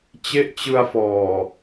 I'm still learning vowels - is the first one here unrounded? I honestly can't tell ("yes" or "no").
yes